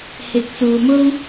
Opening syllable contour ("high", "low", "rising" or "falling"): rising